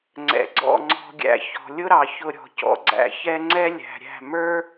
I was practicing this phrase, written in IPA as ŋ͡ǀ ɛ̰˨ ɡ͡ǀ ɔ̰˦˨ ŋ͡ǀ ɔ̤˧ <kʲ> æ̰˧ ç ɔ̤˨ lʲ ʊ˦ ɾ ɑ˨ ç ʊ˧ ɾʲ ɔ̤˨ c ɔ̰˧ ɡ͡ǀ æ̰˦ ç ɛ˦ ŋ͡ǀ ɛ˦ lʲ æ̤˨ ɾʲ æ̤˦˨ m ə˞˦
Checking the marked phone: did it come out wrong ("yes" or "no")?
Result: yes